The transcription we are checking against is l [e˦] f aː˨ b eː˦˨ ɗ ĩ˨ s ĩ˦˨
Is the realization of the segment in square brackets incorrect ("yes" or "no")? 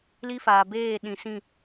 yes